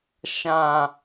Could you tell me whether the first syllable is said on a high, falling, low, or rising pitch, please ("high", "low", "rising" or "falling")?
low